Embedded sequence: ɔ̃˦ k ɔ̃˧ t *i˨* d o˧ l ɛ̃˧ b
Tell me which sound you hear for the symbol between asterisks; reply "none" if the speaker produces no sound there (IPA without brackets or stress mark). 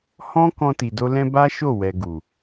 i˨